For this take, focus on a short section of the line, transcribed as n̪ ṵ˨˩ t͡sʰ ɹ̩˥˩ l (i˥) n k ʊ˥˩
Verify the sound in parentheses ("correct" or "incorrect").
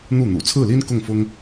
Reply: correct